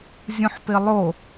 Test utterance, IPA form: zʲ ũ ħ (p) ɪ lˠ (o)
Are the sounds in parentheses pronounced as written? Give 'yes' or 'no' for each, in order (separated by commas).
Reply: yes, yes